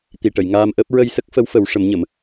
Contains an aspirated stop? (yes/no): no